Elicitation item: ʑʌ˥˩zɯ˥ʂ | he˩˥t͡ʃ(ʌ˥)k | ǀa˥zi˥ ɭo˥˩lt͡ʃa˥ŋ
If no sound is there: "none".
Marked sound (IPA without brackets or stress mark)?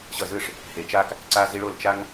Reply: a˥